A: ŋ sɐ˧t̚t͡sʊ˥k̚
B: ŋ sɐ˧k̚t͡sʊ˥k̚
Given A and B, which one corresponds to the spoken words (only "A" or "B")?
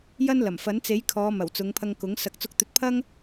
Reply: B